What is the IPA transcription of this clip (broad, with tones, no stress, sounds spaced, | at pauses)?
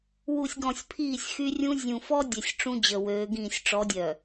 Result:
w u˨ sʲ ɡ ɔ̃˨ sʲ pʰ iː˦˨ sʲ x y˦ rʲ ũ˦ zʲ ũ˨ f ɔ˦ dʲ ɛ˨ sʲ ʈ͡ʂ ũ˦ d͡ʑ ə˨ w øː˨˦ ɡ ĩː˦˨ sʲ ʈ͡ʂ ɔ˨˦ dʲ œ˨